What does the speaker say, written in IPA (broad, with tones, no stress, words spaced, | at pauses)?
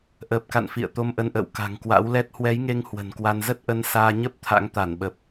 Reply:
ʔəː˨˩p̚ka̰˧˨n fḭ˧˨ə̯ t̪o˧mʔə˧nʔə̰ː˧˨w ka̤˨˩ŋkwa̰˧˥wlɛ˦˥t̚ hwɛ˨˦jŋe˧ŋ hwə̤˨˩nkwa˧n zə˦˥t̚ʔə˧n saː˧ɲə˦˥p̚ t̪ʰa̰˧˥ŋt̪a˧˩nɓə˨˩p̚